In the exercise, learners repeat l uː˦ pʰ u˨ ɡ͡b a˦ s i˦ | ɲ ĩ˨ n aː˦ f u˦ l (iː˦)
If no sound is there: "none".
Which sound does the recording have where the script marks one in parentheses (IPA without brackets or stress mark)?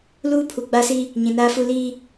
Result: iː˦